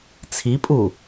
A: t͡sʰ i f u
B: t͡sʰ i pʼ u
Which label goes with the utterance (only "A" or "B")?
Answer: B